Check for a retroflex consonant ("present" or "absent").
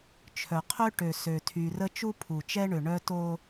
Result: present